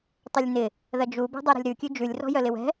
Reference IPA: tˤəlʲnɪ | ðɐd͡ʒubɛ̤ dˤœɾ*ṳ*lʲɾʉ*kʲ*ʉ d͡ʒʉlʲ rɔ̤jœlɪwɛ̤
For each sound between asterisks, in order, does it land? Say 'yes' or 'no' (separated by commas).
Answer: yes, yes